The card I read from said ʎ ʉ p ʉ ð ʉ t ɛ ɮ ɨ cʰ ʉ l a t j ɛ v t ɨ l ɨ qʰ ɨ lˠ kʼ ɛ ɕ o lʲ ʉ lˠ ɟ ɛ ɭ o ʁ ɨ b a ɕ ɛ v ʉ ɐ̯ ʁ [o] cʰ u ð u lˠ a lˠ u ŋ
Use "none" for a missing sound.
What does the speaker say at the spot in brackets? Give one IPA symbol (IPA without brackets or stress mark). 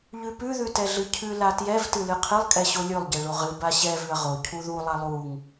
o